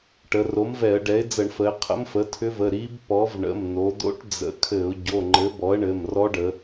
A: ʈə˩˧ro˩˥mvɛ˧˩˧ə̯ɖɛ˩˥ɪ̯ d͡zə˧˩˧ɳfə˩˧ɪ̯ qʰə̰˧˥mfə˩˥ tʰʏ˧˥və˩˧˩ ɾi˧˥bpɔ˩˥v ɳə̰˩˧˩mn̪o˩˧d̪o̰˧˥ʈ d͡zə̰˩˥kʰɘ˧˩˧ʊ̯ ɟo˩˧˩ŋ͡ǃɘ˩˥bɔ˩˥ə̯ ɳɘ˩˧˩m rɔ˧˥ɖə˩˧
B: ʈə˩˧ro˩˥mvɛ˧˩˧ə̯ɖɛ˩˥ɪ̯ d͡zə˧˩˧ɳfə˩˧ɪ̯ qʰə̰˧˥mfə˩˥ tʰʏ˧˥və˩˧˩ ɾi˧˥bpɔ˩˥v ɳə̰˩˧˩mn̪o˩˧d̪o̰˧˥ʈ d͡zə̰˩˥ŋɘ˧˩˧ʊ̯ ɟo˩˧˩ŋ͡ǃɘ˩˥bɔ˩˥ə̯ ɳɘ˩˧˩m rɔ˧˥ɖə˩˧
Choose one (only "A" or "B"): A